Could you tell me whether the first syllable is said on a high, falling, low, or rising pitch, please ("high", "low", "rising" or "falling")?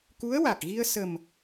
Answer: rising